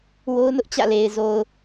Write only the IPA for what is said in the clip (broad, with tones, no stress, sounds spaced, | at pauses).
w o˦ ʊ̯ n ʊ˦ ʔ t͡ɕ ä̰˦˨ l e˨ ɪ̯ z o˨ ʊ̯